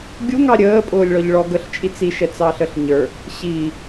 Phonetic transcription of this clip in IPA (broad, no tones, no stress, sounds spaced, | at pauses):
ɡʲ u ŋ ɑ ɾʲ əː pʼ ʊː lʲ ɭ ɔ ʎ ɭ ɔ ɡ ə ɬ t͡ʃʼ i t͡s i ʃ ɛ t͡s ɑ ɬ ə ɬ ɲ ə˞ | ɕ i